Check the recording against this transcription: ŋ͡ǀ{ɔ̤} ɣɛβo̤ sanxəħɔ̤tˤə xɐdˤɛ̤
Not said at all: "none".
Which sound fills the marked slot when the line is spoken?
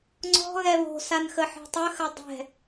ɔ̤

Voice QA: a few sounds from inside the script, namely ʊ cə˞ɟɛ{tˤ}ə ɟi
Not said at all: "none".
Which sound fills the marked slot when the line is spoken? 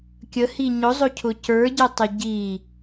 tˤ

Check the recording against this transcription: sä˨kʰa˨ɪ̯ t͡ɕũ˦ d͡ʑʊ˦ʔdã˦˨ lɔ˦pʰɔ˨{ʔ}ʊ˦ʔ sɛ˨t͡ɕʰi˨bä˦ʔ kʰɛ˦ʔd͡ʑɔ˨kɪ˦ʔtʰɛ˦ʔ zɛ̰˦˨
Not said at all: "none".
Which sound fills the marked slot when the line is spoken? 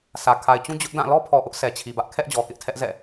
ʔ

